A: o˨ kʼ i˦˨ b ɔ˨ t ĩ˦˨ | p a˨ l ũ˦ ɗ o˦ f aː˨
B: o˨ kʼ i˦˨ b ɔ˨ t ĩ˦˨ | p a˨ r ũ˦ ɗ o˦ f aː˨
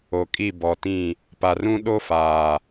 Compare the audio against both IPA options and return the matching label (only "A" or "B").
B